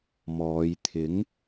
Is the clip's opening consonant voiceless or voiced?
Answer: voiced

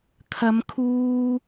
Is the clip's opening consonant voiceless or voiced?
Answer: voiceless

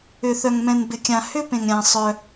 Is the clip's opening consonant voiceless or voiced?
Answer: voiceless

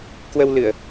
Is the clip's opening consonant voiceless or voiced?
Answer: voiceless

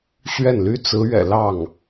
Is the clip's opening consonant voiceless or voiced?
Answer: voiceless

